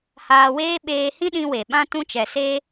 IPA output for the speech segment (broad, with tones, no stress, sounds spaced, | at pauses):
h aː˧ w eː˦ ɓ eː˧ h ĩ˦ ɗ ĩ˧ w e˨ ɓ ã˧ t ũ˧ t͡ʃ ɛ˨ s e˦